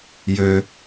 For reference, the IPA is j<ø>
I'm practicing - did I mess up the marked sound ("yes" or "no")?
no